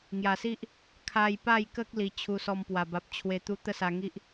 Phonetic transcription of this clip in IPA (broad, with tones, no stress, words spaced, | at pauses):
ŋja˨˩si˦ʔ | kʰa˧jpa˥˧jkə˦k̚ li˧ t͡ɕʰu˧sɔ˧mpwa˨˩ ba˨p̚t͡ɕʰwe˧t̪u˦ t̪ə˥˧sa˧ŋi˦ʔ